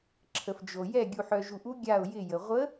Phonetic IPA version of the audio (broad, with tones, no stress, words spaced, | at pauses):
ǁʰə˩fd͡ʒo˩ jɛ˧˩ ɡʲu˩ħœ˩ʒu˩ʔu˧˥ ɡʲa˧˩ʊ̯jɪ˧˩jə˩ ʁʷə˧˥